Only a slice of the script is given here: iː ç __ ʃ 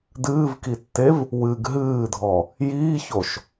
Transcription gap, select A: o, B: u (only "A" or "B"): A